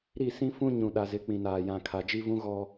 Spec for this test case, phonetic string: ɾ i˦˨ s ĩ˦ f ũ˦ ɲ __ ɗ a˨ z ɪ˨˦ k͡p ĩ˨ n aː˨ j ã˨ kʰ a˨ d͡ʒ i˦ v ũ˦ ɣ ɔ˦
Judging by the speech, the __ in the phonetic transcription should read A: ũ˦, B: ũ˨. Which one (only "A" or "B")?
B